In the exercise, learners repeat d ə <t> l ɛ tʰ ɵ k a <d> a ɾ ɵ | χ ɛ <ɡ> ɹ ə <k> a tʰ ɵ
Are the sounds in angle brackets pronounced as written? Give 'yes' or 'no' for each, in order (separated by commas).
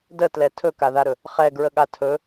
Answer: yes, no, yes, no